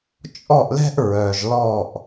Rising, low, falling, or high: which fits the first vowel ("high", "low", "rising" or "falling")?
falling